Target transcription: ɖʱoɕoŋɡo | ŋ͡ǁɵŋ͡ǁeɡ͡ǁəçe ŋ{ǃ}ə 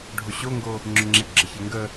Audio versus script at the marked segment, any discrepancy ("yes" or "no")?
yes